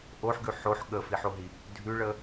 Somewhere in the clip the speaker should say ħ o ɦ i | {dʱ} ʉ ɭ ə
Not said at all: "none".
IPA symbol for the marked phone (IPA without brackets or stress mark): dʱ